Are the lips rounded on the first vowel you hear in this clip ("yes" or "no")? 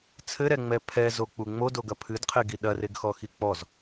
no